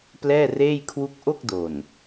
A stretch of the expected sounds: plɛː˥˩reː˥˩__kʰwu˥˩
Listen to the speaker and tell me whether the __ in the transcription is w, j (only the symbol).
j